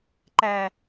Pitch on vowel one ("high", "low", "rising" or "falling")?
low